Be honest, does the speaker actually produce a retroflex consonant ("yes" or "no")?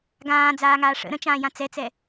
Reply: yes